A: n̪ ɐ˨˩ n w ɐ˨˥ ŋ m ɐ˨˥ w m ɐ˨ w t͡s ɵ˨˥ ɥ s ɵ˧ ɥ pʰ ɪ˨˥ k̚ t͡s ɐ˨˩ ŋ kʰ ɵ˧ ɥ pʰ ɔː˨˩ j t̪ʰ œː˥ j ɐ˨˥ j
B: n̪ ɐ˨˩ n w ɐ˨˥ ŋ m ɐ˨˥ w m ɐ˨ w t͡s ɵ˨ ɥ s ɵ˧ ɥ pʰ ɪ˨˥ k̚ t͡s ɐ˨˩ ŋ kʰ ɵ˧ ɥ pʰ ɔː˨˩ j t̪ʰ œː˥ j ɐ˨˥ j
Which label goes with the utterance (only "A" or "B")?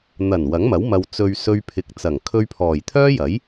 B